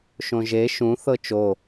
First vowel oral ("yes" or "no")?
no